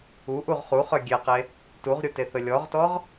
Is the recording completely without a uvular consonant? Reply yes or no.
no